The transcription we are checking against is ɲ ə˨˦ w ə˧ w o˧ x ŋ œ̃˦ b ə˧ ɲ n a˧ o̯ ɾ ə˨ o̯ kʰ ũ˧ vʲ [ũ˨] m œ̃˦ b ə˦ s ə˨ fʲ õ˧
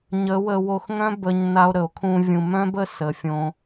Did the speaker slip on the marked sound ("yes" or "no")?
no